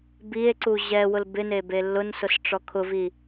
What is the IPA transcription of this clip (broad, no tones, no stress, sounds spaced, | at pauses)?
b i e̯ ǀ u ʑ ɛ w ʊ l b ɪ n e b e lː ʊ n s ʊ s ʈ͡ʂ ɔ kʰ ʊ v i